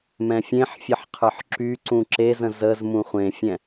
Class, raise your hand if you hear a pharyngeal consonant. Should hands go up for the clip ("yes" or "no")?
yes